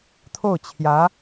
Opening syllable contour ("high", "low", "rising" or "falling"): falling